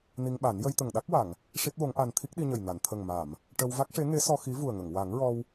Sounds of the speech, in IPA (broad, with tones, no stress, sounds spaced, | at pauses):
n i˧ ŋ ɓ a˨˩˦ n j ə˧ j t̪ ə˨˩ ŋ ɗ a˦˥ k̚ w a˨˩˨ ŋ | ʂ i˦˥ t̚ w o˧˥ ŋ ʔ a˧ n t̪ʰ i˦˥ k̚ ɗ i˧ ɲ ə˨˩ j n a˨˩˨ n t̪ʰ ə˨˩ ŋ m a˨˩˨ m | ʈ ə˧ w v a˦˥ k̚ ʂ e˧˥ ŋ e˧˥ s ɔ˧ x i˧˥ v u˨˩ ə̯ ŋ ə˨˩˨ ŋ w a˨˩˦ ŋ ɹ ɔ˧ w